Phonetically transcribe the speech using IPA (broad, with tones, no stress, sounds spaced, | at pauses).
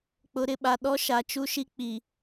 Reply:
k͡p ʊ˨˦ ɾ ɪ˨ ɓ a˨ ɗ ɔ˦ ʃ a˨ t͡ʃ u˦ ʃ i˦ k͡p i˨